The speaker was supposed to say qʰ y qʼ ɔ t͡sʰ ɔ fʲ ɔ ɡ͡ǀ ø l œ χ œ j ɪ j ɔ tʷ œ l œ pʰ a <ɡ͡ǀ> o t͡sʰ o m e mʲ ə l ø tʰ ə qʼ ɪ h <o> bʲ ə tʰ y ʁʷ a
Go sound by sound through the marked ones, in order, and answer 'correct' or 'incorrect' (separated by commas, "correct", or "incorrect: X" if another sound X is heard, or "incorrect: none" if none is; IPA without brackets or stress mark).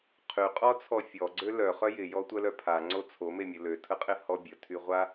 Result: incorrect: ŋ͡ǀ, incorrect: ɔ